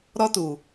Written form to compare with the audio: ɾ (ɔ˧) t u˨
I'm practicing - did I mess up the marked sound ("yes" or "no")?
no